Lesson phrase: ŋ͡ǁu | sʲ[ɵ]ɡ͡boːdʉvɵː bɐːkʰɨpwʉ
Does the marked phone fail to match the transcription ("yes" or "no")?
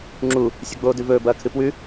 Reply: no